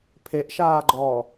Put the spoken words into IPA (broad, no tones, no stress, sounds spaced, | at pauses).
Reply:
pʰ e ʔ ʃ aː ɡ͡ǃ ɔː